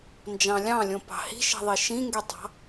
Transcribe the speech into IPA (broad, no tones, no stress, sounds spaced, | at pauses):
n d͡ʒ ɑ̃ lʲ ɑ̃ lʲ õ p ɑ̤ h i̤ ʃ i̤ ðˤ i ʃ ĩ ŋ ɡ y tˤ ɑ̤